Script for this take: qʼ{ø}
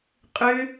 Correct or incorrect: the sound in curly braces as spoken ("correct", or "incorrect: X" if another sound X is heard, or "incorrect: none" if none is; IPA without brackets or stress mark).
correct